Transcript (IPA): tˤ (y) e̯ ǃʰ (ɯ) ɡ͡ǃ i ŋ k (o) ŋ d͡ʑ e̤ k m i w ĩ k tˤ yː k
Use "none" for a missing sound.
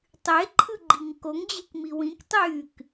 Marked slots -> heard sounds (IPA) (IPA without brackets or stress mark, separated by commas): y, ɯ, o